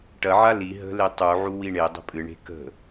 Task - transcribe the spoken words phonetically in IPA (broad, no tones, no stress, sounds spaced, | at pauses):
ʈ ɐ ʕ a l i ɦ ə̤ l e tˤ u ʕ u w i ɳ e dˤ ə̤ pʼ ɨ ɳ e̤ k ə̤